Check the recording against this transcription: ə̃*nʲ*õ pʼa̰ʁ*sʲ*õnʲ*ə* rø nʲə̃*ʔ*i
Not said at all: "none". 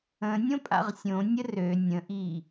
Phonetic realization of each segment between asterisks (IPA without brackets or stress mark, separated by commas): nʲ, sʲ, ə, ʔ